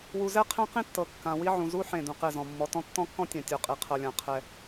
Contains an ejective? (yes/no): yes